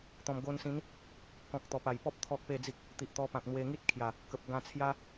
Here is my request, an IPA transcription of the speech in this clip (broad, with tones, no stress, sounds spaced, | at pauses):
t̪ ɔ̃˨˩ m ɡ o˧ n s ĩ˨˦ n | k ɔ̃˨ k̚ t̪ ɔ˨˩ p a˨˩ j p ɔ˦ p̚ t̪ʰ ɔ˦ k̚ p e˥˧ d͡z i˦ k̚ | t̪ i˨ ʔ t̪ ɔ˧ p ã˨ k̚ n̪ w e˧ ŋ i˦ t̚ kʰ j a˨˩ | k ə˨ p̚ ɡ ã˧ t͡sʰ j a˦